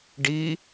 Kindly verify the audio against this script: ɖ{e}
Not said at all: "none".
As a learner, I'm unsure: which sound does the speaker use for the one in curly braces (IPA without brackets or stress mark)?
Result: i